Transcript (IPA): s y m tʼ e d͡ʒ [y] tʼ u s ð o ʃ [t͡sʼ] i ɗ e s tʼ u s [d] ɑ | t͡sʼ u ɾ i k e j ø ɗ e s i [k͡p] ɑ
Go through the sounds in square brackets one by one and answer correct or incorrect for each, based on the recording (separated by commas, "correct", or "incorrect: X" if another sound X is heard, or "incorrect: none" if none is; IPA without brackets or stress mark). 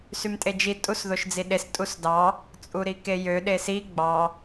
incorrect: i, incorrect: d͡z, correct, incorrect: ɡ͡b